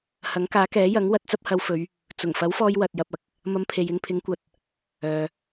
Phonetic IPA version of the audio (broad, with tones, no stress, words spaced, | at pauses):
hɐ˨˥ŋkaː˨˥kɛː˨˥ jɐ˨˥ŋ wɐ˨˥t̚t͡sɐ˥p̚hɐ˧wfɵ˨˧ɥ | t͡sʊ˨˩ŋ fɐ˨˥wfɔː˧j wɐ˧t̚jɐ˧p̚ɐ˨k̚ | mɐ˥mpʰe˧j ɪ˧ŋpʰɪ˨˥ŋkʷɐ˨t̚ | œː˨